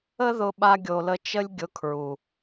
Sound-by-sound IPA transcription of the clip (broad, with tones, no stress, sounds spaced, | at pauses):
ə˦ ð ʊ˧ ɓ a˧ ɡʲ o˨ l ə˧ t͡ʃ ə˦ lʲ ɡʲ ʊ˧ kʰ ɹ u˨